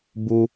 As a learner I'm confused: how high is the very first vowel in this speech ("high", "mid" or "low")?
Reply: high